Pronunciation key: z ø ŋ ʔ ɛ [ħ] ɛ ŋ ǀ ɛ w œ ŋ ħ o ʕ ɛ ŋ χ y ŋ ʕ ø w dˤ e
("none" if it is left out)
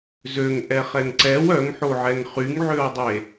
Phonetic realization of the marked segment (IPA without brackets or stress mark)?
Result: χ